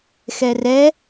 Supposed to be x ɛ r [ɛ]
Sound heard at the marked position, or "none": ɛ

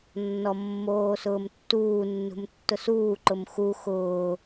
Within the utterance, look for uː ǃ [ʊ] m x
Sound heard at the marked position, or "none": ʊ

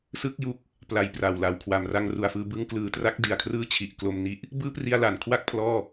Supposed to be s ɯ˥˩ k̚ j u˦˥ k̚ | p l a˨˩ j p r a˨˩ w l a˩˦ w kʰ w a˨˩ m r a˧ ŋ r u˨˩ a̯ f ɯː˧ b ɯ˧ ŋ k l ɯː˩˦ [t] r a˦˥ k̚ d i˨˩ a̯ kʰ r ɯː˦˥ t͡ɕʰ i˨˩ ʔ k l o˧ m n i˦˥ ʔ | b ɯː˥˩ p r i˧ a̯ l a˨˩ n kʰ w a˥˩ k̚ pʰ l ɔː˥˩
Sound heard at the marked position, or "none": t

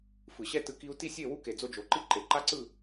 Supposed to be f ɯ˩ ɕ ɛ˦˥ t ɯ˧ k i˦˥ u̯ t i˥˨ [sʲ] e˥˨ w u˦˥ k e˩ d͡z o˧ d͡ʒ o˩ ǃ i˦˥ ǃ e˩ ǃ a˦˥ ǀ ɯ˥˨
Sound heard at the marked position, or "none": sʲ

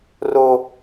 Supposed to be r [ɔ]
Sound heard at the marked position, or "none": o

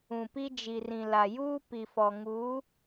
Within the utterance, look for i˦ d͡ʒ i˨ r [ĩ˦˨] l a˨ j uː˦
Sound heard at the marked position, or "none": ĩ˨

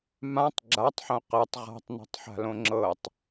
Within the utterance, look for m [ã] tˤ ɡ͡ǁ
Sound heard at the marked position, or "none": ã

